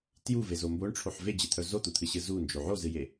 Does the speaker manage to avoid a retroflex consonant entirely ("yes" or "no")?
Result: no